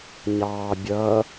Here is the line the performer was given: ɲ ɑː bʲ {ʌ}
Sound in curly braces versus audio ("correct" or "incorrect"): correct